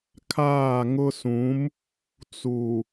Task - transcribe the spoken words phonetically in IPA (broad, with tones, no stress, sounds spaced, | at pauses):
kʰ aː˦˨ ŋ ʊ˦ s ũ˨˦ m | t͡s u˨